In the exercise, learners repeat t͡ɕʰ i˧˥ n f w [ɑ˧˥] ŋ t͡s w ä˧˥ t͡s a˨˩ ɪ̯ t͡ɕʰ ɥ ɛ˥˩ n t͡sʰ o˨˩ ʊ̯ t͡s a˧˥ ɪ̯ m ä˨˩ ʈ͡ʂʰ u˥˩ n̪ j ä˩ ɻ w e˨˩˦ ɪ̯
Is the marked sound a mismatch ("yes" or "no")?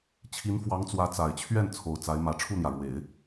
no